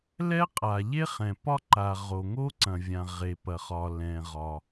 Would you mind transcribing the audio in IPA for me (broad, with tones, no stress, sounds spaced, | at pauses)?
l ɛ˥ qʼ a˩ ʎ e˥ χ ɛ̃˩ p ɒ˥ ǃ a˩ ʁ o˩ ŋ o˥ ǀ ɐ̃˩ vʲ ã˩ ʁ e˩ p ɐ˩ χ ɒ˩ l ɛ̃˩ ʁ ɒ˩